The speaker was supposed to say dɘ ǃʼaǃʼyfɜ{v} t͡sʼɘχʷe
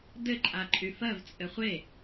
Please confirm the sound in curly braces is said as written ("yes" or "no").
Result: yes